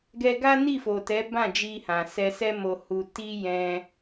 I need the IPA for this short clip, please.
ɡ ɛ˧ ɡ a˦ n i˦˨ f o˨ t ɛ˨˦ b ã˦˨ d͡ʒ i˧ h ã˨ s ɛ˧ s ɛ˦ m o˧ h u˧ t i˦ j ɛ̃˦

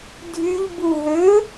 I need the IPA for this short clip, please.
dʱ y ʎ b u ɦ ø

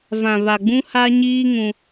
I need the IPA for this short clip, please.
v ã˨ β a˨ ɡ͡b ũ˦ h a˦ ɲ iː˦ ŋ ũ˦

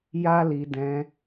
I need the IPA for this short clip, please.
j a˦ l i˧ d ɛ̃˧

